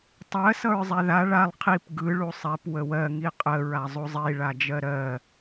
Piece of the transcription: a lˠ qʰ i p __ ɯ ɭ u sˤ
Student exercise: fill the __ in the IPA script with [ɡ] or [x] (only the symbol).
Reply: ɡ